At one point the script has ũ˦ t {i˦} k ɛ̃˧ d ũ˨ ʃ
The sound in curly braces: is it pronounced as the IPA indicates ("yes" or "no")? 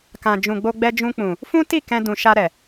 no